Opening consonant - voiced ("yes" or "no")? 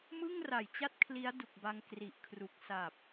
yes